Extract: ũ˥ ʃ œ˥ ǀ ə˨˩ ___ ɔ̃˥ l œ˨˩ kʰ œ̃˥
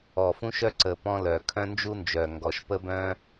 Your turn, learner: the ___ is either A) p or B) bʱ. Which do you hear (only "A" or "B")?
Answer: A